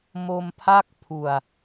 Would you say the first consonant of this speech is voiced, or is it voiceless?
voiced